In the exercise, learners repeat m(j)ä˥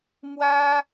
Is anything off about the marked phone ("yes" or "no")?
yes